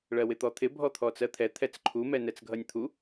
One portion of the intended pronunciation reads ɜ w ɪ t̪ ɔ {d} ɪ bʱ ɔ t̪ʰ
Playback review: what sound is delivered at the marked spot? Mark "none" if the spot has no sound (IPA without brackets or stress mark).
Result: t̪ʰ